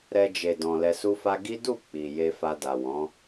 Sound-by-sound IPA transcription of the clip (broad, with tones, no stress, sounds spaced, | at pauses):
ɾ ɛ˧ d͡ʒ e˨ d ɔ̃˨ l ɛ˧ s u˦ f a˦ ɡ i˦ d u˦˨ k͡p i˨ j e˧ f a˧ d a˨ w ɔ̃˨˦